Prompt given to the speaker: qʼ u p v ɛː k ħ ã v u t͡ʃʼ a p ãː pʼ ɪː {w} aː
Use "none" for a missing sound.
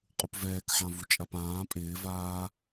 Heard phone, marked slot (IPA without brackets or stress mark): v